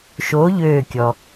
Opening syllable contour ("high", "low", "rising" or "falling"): rising